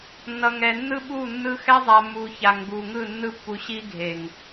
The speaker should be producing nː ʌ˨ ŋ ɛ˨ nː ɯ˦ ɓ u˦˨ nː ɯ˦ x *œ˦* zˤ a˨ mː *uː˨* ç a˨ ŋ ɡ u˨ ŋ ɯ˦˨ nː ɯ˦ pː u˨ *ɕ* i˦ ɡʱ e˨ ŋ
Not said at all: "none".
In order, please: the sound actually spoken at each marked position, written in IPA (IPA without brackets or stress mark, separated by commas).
ɛ˦, u˨, ɕ